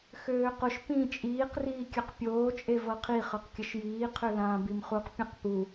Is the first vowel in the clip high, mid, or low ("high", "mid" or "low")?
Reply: mid